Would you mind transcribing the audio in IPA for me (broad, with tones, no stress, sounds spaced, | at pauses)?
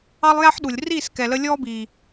ɑ˦ lˠ j æ˦ ħ ɗ u˨ lʲ r iː˦˨ s k ɛ˨ l ə˧ lʲ ɔː˦ b iː˨